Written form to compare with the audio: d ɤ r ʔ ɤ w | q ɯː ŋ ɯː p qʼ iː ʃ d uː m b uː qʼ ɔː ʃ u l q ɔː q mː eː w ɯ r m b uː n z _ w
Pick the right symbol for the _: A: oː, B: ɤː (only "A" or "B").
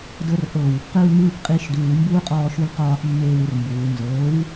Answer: B